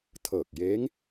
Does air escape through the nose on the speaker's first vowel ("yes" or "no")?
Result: no